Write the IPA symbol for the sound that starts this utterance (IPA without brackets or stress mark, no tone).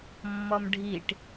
mː